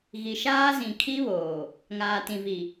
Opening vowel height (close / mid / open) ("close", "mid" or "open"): close